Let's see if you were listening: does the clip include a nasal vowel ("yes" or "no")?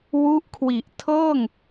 no